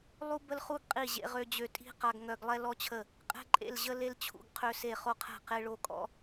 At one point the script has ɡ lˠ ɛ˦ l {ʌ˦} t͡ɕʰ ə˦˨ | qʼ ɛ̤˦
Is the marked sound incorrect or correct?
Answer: incorrect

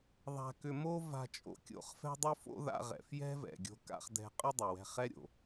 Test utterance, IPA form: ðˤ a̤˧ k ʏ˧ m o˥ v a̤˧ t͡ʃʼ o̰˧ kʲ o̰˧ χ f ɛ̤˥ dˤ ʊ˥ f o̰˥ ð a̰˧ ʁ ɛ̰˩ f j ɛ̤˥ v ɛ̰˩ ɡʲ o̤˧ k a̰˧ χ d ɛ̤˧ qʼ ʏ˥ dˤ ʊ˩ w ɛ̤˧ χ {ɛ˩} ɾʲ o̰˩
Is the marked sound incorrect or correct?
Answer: incorrect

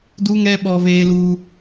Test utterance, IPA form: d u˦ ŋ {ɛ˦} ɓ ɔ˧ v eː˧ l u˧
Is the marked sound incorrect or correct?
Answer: correct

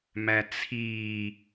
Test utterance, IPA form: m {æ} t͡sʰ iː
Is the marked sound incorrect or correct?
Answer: correct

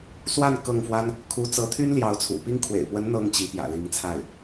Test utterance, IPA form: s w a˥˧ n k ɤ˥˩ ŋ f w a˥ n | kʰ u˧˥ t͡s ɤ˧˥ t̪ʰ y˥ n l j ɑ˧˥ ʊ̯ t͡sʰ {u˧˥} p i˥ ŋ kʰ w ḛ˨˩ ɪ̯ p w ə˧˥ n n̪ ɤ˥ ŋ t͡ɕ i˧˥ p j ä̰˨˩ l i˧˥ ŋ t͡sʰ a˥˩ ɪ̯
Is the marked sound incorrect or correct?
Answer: incorrect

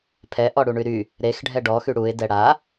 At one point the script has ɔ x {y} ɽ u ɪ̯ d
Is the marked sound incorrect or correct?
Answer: correct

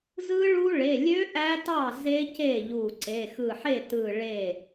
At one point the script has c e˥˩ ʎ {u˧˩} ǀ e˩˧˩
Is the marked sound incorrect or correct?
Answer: correct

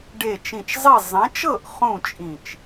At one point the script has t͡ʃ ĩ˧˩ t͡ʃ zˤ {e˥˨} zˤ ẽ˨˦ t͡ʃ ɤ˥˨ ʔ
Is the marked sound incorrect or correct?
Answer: correct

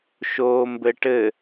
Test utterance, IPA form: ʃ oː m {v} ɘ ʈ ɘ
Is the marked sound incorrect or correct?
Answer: incorrect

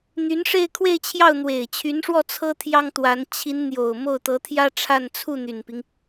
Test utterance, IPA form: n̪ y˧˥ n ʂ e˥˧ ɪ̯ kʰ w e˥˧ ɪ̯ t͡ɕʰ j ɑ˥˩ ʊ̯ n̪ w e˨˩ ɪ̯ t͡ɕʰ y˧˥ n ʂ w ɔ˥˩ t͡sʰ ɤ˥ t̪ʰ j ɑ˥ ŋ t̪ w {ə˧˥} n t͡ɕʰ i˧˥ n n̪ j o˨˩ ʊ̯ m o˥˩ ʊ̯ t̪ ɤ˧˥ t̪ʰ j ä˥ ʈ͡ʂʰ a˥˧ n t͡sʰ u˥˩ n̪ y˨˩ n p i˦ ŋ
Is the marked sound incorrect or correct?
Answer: incorrect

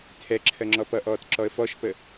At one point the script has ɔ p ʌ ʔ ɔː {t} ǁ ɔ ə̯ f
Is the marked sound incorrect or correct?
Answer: correct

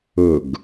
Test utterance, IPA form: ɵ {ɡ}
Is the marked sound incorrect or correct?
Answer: correct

